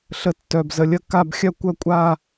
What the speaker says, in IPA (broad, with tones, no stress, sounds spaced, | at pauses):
ɬ ə˧ tː œ˧˩ b z ə˧ lʲ ə˥˧ k a˥˧ b xʲ œ˥˧ kʷ œ˥˧ kʷʼ a˥˧